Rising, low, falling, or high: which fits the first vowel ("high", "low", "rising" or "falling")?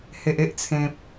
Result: low